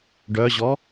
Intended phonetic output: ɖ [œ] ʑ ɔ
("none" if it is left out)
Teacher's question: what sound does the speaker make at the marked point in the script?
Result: œ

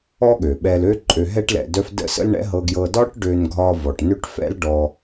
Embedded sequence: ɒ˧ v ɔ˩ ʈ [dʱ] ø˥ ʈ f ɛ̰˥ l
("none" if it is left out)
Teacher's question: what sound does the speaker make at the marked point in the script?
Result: n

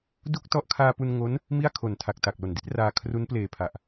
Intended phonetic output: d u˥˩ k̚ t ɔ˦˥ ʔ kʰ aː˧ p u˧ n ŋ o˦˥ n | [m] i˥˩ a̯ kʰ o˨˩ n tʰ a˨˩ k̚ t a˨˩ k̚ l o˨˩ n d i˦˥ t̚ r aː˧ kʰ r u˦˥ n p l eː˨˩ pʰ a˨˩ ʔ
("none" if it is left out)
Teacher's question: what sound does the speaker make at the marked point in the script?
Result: m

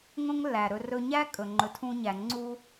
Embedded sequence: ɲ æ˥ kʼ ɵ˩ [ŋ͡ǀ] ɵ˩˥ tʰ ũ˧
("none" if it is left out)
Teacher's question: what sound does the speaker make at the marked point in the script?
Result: ŋ͡ǃ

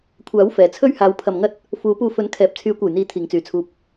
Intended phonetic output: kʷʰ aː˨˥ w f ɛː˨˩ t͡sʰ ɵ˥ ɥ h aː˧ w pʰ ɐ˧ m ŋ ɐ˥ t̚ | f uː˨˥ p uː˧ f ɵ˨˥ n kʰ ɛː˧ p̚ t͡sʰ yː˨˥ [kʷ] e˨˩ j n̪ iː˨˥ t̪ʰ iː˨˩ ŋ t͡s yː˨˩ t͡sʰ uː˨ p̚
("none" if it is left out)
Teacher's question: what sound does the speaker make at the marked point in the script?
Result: kʷ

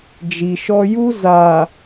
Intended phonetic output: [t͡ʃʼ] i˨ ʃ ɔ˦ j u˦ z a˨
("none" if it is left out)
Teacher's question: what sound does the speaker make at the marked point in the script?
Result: d͡ʒ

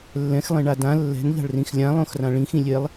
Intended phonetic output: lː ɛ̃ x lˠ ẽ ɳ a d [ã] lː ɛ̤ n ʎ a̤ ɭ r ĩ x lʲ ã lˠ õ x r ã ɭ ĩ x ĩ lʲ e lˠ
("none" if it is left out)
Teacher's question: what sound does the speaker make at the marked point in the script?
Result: ã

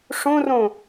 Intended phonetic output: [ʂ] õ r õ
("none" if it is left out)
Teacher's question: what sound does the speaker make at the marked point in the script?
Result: ʂ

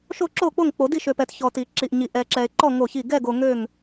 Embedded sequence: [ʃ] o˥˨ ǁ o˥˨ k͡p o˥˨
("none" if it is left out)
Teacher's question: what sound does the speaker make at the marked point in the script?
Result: ʃ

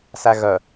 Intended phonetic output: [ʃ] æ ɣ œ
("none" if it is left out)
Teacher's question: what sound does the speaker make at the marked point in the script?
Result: s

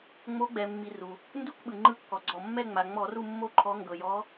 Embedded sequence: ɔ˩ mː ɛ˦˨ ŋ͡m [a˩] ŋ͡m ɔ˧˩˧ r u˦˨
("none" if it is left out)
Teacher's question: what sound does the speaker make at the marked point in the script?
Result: a˩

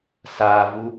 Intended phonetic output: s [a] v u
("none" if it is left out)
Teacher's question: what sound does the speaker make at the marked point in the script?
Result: a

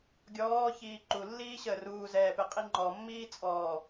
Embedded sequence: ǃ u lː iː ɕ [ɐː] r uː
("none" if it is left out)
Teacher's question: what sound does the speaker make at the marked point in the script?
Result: əː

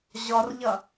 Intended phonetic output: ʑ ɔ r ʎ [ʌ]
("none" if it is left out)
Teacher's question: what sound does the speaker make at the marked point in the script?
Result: ʌ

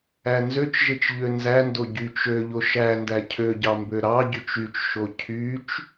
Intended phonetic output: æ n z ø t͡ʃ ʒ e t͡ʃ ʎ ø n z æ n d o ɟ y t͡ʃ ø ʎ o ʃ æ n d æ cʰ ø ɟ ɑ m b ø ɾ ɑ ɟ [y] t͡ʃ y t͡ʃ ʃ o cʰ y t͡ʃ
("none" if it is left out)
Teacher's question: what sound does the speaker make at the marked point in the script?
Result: y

